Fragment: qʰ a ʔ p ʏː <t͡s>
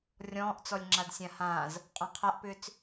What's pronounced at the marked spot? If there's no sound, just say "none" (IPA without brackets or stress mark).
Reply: t͡s